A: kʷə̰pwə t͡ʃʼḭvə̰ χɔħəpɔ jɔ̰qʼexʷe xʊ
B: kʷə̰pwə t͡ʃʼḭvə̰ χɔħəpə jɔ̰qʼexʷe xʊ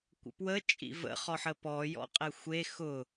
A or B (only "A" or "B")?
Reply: A